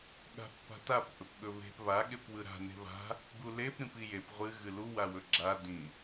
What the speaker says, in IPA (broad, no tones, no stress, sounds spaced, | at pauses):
ɠ a̤ pː a̤ t a p ʔ ɵ p ɠ ɵ β e̤ p β a ɠ e p w ɯ ɾ a̤ n e̤ β a̤ | ɡ u l e p ɾ ĩ p i j e p ʁʷ ɨ ɣ ɨ l u w a w ɵ ɡ͡ǁ a d ĩ